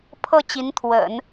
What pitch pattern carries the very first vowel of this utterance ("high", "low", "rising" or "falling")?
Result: falling